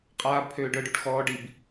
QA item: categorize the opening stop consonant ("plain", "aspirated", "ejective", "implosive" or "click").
ejective